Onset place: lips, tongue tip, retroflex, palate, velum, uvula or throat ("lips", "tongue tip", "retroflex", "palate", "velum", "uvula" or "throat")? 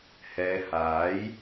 throat